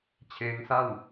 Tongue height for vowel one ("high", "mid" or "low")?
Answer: mid